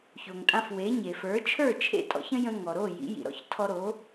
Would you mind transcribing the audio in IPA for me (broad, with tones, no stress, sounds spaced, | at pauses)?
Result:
ç o˩ ŋ tʼ ã˧ f w e˩˥ ɲ e˩ f ə˞˩˥ t͡ʃʰ ə˞˥˩ t͡ʃʰ ḛ˥˩ tʼ ɔ̰˩˥ ç ə̃˥ j ə̃˧ ŋ ɔ˩ ɾ o˥˩ j ḭ˩˥ j ḭ˩ ɾ ɔ̰˧ ç tʰ ɔ˧ ɾ o˩˥